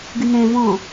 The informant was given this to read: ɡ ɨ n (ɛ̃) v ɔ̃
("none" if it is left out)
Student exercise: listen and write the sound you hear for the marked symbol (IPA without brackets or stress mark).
ɛ̃